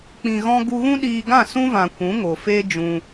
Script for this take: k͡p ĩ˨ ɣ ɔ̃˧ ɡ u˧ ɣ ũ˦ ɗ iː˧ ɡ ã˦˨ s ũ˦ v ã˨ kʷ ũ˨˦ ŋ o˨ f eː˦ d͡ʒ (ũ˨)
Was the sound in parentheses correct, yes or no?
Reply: no